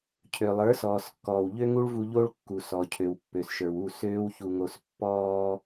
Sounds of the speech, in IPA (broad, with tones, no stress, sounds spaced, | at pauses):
cʰ ø˩ lˠ ə˞˩˥ s ɔː˩ s kː ɔː˩ w ʎ ø˥ ŋ u˥ ɭ v u˧ ʎ o˥ ɭ kː u˩ s ɔ˩ cʰ ø˩ w pː ø˩ s ʃ ə˞˩ w u˥˩ s øː˥ w ç u˧ ŋ o˧ s pː ɔː˧